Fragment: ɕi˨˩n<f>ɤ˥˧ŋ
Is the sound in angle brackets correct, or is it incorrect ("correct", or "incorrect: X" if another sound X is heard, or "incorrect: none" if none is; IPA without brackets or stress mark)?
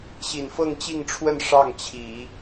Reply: correct